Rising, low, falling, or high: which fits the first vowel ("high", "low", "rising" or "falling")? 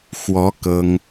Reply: rising